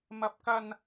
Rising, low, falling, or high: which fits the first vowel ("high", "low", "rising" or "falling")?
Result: high